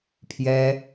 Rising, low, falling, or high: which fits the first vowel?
high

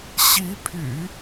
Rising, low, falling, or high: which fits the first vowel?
rising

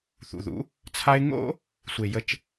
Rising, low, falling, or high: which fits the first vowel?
low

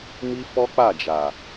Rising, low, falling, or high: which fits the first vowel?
high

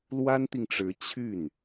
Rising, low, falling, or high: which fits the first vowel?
high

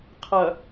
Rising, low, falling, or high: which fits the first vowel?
low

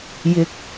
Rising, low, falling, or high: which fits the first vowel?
low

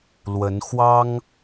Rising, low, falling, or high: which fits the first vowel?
rising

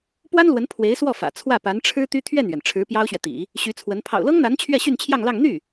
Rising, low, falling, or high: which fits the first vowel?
high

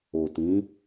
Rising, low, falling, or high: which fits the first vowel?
low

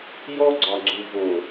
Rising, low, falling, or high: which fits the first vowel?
high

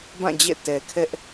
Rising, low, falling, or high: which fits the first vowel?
falling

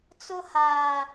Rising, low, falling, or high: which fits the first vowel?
high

